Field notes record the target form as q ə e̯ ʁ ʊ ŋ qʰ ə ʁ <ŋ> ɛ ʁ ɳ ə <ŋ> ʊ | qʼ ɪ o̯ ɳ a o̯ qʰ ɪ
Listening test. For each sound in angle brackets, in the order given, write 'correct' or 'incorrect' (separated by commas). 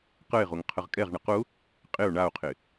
incorrect, incorrect